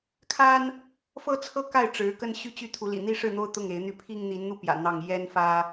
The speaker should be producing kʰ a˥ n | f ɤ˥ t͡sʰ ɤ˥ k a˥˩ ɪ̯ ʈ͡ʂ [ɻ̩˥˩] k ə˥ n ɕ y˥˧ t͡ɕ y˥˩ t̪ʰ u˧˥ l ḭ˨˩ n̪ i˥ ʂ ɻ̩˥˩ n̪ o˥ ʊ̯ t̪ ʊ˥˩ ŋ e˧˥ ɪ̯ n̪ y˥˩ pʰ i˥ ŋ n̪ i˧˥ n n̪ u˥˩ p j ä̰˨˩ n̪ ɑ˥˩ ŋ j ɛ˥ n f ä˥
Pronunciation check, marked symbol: incorrect: ɻ̩˧˥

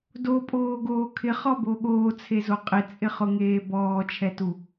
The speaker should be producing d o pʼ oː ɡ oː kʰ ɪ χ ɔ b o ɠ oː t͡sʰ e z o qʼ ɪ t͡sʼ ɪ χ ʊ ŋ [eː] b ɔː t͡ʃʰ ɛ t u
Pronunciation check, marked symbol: correct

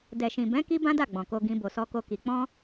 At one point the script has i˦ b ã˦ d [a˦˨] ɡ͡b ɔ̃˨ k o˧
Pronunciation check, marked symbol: correct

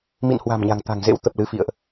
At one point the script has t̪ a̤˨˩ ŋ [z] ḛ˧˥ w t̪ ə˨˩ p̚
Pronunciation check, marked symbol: correct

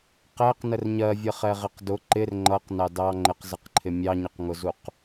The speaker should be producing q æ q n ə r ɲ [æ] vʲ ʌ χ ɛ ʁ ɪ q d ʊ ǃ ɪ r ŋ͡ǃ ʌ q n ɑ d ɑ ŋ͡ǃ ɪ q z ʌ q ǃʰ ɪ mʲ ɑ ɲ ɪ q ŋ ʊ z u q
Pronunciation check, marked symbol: incorrect: ɜ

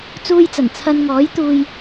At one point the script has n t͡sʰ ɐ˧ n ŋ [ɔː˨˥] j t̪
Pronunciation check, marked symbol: correct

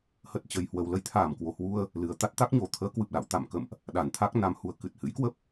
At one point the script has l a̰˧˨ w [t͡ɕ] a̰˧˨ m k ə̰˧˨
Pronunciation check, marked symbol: incorrect: t̪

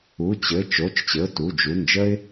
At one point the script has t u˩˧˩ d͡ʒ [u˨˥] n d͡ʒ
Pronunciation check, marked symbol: incorrect: u˩˧˩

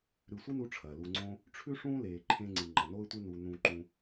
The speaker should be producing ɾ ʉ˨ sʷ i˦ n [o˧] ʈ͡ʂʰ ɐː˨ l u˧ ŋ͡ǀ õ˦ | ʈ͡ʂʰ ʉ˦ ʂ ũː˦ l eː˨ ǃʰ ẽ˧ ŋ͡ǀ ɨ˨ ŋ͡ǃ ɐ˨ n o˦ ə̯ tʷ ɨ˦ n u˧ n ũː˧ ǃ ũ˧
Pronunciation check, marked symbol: incorrect: u˧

